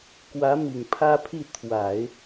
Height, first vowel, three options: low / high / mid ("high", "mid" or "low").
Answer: low